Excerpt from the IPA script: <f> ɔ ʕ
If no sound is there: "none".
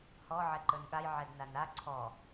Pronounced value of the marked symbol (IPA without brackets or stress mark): h